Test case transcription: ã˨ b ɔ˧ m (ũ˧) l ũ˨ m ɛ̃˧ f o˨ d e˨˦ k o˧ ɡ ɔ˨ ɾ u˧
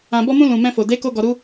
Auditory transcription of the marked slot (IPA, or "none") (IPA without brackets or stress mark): ũ˧